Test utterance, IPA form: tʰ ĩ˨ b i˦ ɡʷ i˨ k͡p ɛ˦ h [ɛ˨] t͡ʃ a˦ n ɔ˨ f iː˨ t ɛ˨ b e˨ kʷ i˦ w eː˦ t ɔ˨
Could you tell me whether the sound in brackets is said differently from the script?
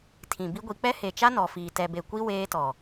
yes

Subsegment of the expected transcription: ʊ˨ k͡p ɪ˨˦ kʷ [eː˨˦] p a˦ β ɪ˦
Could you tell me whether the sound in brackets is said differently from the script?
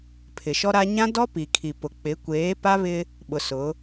no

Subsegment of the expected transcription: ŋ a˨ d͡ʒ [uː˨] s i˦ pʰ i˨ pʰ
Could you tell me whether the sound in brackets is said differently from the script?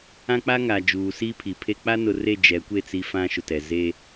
no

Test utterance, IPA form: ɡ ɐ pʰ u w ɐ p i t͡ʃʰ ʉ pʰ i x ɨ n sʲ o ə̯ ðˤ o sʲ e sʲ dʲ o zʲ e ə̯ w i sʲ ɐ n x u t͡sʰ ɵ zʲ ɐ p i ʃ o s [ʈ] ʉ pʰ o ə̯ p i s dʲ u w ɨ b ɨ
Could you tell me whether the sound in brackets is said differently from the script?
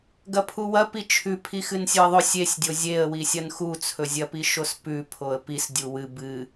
yes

